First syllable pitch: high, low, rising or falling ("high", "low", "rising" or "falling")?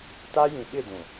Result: high